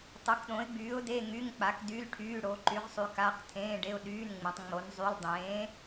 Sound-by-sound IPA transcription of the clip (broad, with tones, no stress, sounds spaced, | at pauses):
tˤ o˨˥ k ɗ õ˨˥ ɪ̯ ɡ͡b yː˨˥ ʊ̯ d e˧˥˧ ŋ y˧˥˧ ŋ k͡p a˨˥ k d y˧˥˧ l ʈʰ yː˧˥˧ ɽ o˨˥ ǃ y˨˥ ʁ sˤ y˨˥ k a˧˥˧ q tʰ ẽː˧˥˧ ɖ e˧˥˧ ʊ̯ ɗ yː˧˥˧ n ŋ͡m ẽ˨˥ tˤ ŋ͡m o˨˥ n zˤ y˧˥˧ l dˤ ẽː˨˥